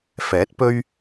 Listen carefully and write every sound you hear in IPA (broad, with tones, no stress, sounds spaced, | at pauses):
f ɛː˨˥ t̚ p ɵ˧ ɥ